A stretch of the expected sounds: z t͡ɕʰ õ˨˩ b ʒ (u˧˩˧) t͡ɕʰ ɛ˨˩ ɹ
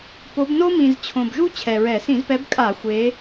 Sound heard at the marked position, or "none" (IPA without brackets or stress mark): u˥